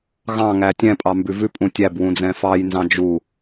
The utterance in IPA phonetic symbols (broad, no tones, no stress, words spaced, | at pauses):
ɣɑ̃ ŋætʲɛ̃ pʼɑmbʉvʉ pʼũtʲæb wũd͡zɛ̃fɑj nzɑ̃d͡ʒu